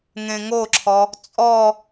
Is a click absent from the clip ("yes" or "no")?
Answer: no